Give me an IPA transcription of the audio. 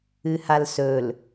ɨ h a l s ɵ l

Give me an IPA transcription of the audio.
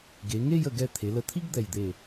ɡ e˩˧ ŋ e˥˧ j ə˧˩ ɡ ɛ˧ t̪ʰ e˩˧ l ə˧˩ t̪ʰ i˥ ɡ d̪ ɛ˧˩ j d̪ e˧˩

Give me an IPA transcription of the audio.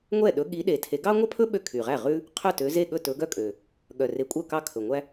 ŋʷ ɛ˥˩ ɗ ɵ˨˦ ɠ i˨˦ ɗ e˨˩ tʰ e˨˦ ɡ ɑ˥ ŋʷ œ˥ pʰ ɵ˥ ɓ ø˥˩ kʰ y˨˩ ʁ æ˥˩ ʁ ʉ˥ | qʰ œ˥˩ t ø˨˦ z e˥˩ ɠ ɵ˥˩ t ɵ˨˦ ɡ œ˥ kʼ ø˨˩ | ɠ œ˨˩ r e˨˦ kʷʼ œ˥˩ k ɑ˥˩ kʰ ɵ˨˩ ŋʷ æ˥

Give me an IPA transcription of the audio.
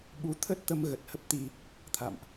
ɓ u˨˦ t̪ʰ ə˦˥ t̚ t̪ ə˧ m ɣ ə˨˩ t̚ h ə˦˥ p̚ t̪ i˧ | t̪ʰ a̰˧˨ m ʔ

